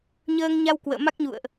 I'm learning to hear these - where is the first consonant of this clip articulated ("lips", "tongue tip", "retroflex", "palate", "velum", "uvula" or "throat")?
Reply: palate